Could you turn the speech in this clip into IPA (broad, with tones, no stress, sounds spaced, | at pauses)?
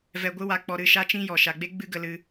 v ɛ˧ ɡʷ ɨ˦ w a˧ k͡p ɔ˧ ɾ ɨ˦˨ ʃ a˦ t͡ʃ ĩ˦ j ɔ˨ ʃ a˨ ɡ͡b e˦ ɡ͡b ɨ˦ ɡ ə˧ l ɨ˧